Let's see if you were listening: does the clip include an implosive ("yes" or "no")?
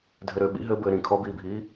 yes